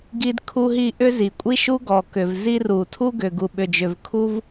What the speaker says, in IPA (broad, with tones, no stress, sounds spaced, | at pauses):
ɡ i˥ d kʰ u˥ ɦ i˥ ʔ ʏ˥ z i˩ kʷʼ i˥ ʃ u˥ ɡ ɔ˩ k ʏ˩ v z i˥ r u˩ tʰ u˥ ɡ ʏ˩ ɡ u˩ ɓ ʏ˩ d͡ʒ ʏ˩ v kʰ u˥ v